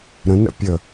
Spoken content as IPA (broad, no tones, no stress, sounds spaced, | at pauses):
ɾ ə̃ n ɾ ə̰ pʲ ə